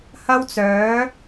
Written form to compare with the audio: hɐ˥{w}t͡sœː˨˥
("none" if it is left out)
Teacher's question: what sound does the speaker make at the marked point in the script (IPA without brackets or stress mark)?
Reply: w